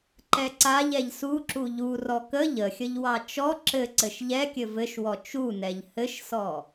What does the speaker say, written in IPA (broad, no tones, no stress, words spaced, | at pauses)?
ǃɛǀaʎ ɛʎsuǁu ʎu rɔkə ʎəxʲəʎwɑ t͡ʃɔ ǁɘǀɘʃ ʎɛkʲɘ vɘʃwɔ t͡ʃunɛʎ hɘʃsɔ